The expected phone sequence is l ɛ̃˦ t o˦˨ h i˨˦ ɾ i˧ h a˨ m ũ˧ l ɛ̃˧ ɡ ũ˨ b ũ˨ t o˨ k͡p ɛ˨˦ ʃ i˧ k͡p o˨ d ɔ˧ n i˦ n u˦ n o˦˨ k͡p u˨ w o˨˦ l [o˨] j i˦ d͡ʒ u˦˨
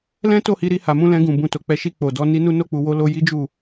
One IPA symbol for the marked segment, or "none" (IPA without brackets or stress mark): o˧